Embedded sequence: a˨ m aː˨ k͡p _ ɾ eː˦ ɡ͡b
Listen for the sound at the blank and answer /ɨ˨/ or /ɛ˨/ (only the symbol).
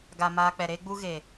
ɛ˨